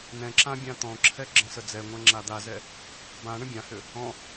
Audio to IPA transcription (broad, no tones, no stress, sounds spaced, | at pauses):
n ɛ̃ ǁ ã bʲ ã t̪ ɔ̃ ǁʰ ɛ ɡ͡ǁ ə̃ s ə d͡z ɛ ŋʷ ɛ̃ ŋ͡ǁ a d̪ a z ɛ | b ã ɳ ə̃ bʲ ã h ʏ | ɔ̃